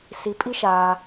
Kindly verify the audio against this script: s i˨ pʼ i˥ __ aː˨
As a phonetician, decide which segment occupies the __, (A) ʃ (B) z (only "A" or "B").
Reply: A